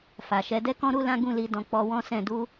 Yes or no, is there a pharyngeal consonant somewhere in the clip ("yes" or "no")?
no